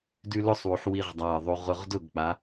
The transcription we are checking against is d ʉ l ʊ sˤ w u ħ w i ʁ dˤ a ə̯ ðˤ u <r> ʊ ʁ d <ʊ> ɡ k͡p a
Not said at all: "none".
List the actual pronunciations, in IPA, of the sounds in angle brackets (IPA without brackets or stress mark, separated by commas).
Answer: ʁ, ʊ